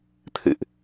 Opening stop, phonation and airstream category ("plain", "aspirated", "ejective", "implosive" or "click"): aspirated